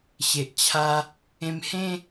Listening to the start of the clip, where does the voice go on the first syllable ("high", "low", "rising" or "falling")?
low